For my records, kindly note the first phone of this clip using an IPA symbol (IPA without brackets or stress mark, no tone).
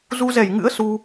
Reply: z